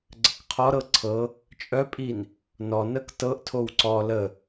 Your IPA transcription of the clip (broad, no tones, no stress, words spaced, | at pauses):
ɡ͡ǀəkqʰɔɾɤ ǀʰɤ | t͡ʃʼœpʼin | nɔnək tɤʔtʰow ǀɔ lə